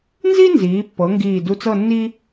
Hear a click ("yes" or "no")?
no